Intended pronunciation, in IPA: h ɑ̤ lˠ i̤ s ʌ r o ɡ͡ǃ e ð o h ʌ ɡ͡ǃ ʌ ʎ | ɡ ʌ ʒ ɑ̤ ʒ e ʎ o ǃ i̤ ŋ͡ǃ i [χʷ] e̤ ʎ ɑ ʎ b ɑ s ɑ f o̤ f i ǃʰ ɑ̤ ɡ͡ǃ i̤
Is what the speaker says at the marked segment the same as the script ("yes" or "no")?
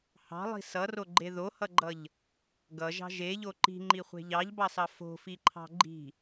yes